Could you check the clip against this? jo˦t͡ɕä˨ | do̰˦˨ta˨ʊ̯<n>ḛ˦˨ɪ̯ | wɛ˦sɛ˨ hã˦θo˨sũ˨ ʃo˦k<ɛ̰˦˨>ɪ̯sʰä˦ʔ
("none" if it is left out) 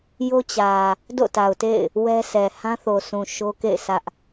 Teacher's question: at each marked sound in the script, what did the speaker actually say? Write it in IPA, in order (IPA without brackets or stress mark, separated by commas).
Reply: t, ḛ˦˨